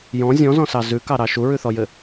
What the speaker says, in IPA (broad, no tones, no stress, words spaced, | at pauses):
jɔ̃ zʲɔ̃zɔ̃sɑ zʉkɑɾɑ ʃuɹʉθɔjɘ